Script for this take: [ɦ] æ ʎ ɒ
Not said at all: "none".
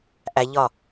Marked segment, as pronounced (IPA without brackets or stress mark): ʔ